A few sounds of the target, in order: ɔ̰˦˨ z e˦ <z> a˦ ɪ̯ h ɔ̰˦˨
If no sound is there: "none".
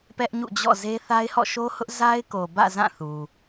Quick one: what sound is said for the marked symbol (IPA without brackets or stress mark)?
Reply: θ